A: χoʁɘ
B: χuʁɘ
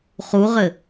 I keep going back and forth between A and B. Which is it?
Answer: B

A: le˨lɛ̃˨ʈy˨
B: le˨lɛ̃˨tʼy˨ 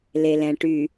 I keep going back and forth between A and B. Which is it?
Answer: A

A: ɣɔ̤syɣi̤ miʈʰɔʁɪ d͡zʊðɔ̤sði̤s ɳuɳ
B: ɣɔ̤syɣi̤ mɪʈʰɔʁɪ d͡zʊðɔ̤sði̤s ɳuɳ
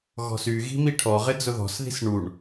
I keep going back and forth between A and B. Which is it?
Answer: A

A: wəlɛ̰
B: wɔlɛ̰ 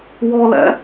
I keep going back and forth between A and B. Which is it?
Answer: B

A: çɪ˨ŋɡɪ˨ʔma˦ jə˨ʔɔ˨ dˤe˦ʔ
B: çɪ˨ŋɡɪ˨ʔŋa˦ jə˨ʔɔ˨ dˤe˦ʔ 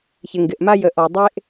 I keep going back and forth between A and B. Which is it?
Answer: A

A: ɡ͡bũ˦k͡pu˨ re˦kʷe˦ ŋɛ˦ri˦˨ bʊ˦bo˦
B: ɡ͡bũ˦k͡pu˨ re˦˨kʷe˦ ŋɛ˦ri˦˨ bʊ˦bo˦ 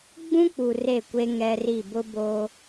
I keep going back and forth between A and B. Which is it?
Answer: B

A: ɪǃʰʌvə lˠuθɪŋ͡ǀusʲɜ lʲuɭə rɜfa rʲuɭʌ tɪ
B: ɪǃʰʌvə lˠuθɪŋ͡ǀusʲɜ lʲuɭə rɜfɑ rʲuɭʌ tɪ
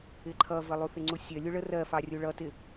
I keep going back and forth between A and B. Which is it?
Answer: B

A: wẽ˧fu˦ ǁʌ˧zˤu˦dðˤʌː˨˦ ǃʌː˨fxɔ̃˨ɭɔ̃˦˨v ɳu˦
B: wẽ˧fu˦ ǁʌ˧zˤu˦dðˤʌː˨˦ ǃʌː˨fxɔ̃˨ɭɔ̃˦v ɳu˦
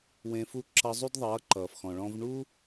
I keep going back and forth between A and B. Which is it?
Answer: B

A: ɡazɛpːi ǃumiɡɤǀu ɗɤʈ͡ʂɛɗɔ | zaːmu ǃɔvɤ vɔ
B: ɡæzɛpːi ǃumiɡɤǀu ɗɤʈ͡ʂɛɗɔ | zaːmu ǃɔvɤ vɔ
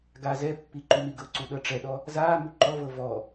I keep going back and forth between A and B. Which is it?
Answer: A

